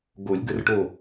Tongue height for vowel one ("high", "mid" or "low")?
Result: mid